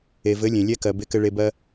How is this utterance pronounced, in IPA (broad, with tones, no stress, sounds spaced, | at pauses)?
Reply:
e˨ v ɘ˨˦ lʲ ẽ˨ lʲ ɛ˦ k ɜ˨ b e˧ k ɘ˧ ɭ e˧ b ɜ˦